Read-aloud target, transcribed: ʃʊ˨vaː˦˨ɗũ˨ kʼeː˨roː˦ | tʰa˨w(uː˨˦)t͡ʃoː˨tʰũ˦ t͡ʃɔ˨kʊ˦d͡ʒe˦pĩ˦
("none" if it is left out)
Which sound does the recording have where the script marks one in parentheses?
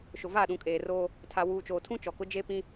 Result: uː˨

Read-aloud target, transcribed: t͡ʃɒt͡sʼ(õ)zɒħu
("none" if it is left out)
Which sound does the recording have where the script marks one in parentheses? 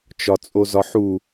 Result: o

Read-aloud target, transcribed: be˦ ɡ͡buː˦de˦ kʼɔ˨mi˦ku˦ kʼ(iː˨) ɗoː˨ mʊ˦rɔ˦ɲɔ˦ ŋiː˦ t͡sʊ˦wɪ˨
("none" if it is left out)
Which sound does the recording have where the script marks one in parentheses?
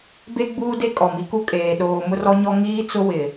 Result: eː˨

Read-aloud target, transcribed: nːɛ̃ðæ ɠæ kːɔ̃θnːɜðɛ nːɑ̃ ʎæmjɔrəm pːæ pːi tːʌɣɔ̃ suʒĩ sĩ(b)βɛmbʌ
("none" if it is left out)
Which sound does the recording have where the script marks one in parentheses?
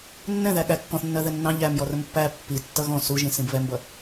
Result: b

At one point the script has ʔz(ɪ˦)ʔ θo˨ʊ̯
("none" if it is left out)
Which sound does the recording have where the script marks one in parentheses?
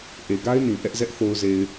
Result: ɛ˦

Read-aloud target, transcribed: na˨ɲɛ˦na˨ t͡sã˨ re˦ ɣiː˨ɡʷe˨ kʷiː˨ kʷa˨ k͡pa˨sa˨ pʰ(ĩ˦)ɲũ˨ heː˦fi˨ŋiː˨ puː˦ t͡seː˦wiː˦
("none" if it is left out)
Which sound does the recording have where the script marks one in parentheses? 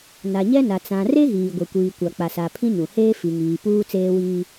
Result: ĩ˦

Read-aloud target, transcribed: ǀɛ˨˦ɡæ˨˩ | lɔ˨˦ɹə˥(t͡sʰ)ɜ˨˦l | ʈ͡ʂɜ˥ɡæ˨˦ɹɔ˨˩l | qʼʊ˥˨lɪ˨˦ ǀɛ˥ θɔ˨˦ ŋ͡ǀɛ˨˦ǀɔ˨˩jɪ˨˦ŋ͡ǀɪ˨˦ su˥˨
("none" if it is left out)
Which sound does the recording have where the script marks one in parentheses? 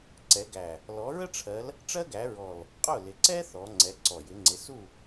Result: ʈ͡ʂʰ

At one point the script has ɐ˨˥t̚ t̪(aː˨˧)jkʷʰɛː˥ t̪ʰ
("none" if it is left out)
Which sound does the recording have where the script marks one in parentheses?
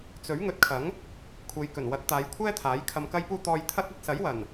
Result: aː˨˧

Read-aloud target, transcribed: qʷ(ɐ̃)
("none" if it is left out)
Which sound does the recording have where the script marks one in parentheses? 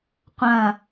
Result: ɐ̃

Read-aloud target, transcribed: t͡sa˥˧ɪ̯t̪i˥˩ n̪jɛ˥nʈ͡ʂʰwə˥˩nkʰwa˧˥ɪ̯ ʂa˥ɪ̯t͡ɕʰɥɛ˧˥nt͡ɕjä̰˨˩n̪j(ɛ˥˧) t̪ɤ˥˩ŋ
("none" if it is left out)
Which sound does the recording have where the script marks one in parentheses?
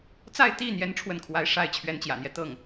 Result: ɛ˦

